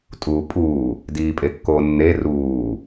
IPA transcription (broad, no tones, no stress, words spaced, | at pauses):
tʼuːpʼuː | diːpʼekːoːnːe ruː